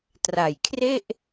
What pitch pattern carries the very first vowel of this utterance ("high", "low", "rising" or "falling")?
low